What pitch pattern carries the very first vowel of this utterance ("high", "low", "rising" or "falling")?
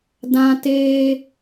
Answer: high